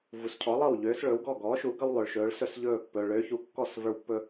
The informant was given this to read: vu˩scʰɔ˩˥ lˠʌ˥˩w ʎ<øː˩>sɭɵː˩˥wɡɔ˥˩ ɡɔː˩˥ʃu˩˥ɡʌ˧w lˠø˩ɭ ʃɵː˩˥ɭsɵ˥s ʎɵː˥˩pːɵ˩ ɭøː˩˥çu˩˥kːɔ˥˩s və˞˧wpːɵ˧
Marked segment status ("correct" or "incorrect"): incorrect